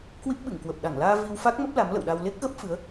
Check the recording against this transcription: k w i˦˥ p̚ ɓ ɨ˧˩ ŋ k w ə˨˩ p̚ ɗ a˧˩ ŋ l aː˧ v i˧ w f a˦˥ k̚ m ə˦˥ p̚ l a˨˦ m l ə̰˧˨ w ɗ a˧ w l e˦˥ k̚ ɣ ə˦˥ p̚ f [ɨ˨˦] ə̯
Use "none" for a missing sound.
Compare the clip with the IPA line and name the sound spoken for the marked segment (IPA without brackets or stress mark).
ɨ˨˦